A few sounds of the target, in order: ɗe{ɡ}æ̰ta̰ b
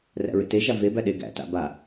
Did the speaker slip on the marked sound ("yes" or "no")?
no